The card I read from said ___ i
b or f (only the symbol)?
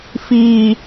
f